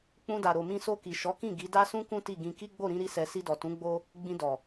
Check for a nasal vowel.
present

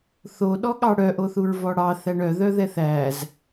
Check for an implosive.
present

